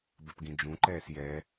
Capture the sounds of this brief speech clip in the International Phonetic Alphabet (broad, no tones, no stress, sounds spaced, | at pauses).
b ɛ p ɡ ĩ d͡ʒ ũ ǃ ɛː s j ɛ